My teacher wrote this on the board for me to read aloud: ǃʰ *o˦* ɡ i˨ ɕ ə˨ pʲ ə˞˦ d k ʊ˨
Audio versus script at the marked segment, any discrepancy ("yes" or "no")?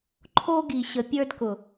no